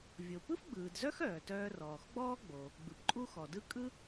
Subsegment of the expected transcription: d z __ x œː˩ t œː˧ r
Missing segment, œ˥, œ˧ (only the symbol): œ˥